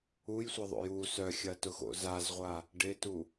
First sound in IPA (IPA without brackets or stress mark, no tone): u